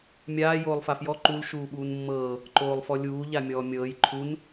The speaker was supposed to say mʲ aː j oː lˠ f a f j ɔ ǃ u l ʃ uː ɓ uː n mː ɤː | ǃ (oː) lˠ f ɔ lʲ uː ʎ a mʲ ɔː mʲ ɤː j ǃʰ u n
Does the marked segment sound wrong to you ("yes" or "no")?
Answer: no